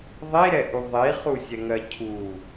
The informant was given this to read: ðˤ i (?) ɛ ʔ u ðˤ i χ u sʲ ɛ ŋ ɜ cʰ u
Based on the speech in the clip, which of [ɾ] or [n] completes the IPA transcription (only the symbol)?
ɾ